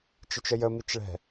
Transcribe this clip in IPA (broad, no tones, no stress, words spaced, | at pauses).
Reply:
t͡ʃɪt͡ʃəjəmit͡ʃ ɭɛ̤